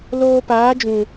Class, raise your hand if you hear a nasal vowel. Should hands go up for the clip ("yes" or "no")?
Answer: yes